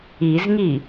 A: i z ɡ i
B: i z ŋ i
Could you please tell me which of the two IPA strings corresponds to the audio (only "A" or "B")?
B